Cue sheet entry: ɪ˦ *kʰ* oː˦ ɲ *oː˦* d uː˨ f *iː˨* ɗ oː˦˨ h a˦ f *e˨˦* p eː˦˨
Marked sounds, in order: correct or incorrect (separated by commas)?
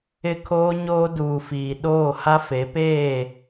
correct, correct, correct, correct